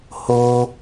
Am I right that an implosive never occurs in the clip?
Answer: yes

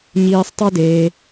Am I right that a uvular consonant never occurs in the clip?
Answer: yes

